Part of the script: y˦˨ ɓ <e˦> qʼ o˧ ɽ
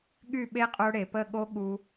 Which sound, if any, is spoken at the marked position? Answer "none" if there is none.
e˦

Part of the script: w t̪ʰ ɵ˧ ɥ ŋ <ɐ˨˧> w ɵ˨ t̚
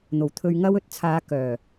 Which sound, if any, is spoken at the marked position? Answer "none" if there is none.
ɐ˥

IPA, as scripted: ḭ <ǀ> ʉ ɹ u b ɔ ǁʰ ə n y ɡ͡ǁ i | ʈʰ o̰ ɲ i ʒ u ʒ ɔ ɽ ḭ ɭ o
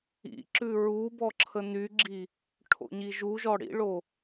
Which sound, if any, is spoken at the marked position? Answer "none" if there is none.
ǁ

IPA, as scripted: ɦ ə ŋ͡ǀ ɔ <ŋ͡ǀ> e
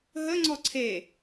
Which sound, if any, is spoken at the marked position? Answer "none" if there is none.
ǀʰ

